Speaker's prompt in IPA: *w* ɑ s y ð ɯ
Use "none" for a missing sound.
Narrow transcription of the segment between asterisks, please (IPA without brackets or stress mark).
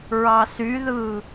ɹ